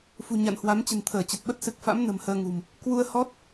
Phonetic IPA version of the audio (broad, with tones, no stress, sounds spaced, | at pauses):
f ṳ˨˩ ɲ a̰˧˨ n h w a˨˦ m t͡ɕ ə̤˨˩ n t̪ʰ əː˧˩ t͡ɕ ə˨˩ t̚ ɓ ə˦˥ t̚ s ɨ˨˩ k̚ f a̰˧˥ m n ə̤˨˩ m h əː˧ ŋ ṳ˨˩ m | k w u˧ ə̯ h ɔ˦˥ t̚